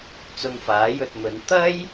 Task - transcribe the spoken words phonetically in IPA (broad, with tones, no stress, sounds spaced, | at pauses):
t͡s ʊ˧ ŋ f aː˨˥ j ɵ˧ t̚ m ɵ˨˧ n t̪ ɐ˥ j